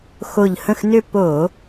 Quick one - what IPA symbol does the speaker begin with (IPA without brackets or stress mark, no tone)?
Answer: x